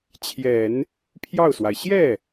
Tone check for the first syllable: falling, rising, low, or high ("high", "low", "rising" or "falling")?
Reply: low